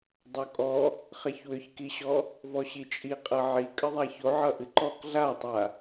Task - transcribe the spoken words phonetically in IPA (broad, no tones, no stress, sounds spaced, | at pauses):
dˤ o kʼ ɔ | χ ɛ ç w ʏ ç k i ɕ ɔ | v ɔ ɕ i t͡ʃʼ i qʼ ʌ ʕ i kʼ ə ðˤ a ç o ʕ ʌ ʔ ɨ ǃ ɔ k ɮ a tˤ a